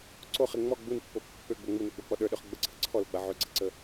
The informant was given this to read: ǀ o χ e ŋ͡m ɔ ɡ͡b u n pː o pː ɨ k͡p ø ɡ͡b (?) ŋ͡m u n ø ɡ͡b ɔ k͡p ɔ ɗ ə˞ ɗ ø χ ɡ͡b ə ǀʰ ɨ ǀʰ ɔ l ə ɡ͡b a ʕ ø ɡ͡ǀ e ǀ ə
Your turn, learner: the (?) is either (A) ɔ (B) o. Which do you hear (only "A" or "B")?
B